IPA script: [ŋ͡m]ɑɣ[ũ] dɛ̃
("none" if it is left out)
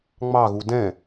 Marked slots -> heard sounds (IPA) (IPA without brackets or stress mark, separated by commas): ŋ͡m, u